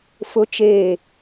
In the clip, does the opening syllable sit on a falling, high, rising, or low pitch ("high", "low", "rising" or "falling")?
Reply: high